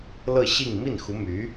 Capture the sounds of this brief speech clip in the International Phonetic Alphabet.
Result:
lɤ˥˧ɕi˥˧ŋ mi˥˩nxu˧˥my˧˥

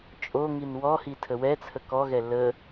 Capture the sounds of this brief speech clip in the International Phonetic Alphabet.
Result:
t͡ʃʼoŋin wɔhi tʰəwɛt͡sʰə kɔɣɛ lə

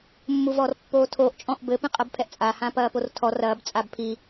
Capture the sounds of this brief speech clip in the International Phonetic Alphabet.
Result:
mːuvɔrpːoːtʰoʔ t͡ʃʼɔ̃ʔbɘ pĩqʼɐbpʰɛʔt͡sʼa hãpɐːportʰɔ rɐːb t͡sʼabpʰi

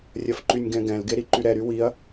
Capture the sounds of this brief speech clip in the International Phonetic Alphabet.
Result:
rʲɐfǃynʲɡɛ̃ɡɛ̃l ɡeɾiǃyɾɛ ɾywiɐ̯

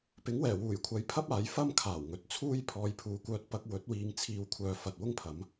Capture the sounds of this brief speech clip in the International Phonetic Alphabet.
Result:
pɪ˨˥ŋwɛː˨˩wuː˨˩jkʷʰɐ˨˥j pʰɐ˥p̚aː˨˧j fɐ˥m kʰaː˨˩wŋɵ˨˥t̚t͡sʰuː˥j pʰɔː˨jpʰuː˨˧kʷœː˧t̚pɐ˧k̚ wɵ˨˥t̚ wiː˧ŋt͡sʰiː˧wkʷʰœː˧ fɐ˨t̚ wʊ˥ŋpʰɐ˨˥m

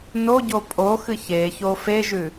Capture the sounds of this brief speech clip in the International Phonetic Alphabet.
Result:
noɟo pʼoxɨ çeço feʒʉ

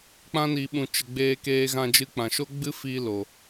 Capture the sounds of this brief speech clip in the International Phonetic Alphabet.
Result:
k͡pã˧ni˨ɓũ˨t͡ʃə˨ ɡ͡beː˧keː˧ɣã˧d͡ʒɨ˧ k͡pã˨ʃo˦ ɡ͡bɨ˦fi˧ lo˨

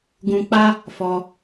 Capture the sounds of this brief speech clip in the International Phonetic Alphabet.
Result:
ɡũ˧k͡pa˦ | fɔ˧

